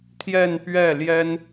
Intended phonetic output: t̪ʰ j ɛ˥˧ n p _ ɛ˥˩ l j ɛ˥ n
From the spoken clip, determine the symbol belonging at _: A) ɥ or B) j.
A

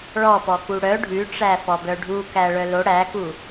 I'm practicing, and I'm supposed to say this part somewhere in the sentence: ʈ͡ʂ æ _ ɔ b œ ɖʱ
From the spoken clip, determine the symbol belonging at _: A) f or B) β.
A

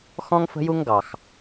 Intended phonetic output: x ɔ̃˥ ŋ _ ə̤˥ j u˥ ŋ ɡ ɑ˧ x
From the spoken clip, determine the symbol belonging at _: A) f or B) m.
A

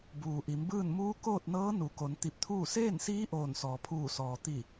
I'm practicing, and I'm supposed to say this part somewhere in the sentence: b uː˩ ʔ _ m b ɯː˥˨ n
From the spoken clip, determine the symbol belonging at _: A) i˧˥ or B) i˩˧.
B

